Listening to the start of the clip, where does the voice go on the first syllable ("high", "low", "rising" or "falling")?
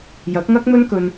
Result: rising